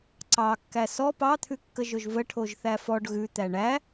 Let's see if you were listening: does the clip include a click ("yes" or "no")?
yes